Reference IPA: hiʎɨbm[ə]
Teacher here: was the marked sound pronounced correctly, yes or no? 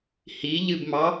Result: no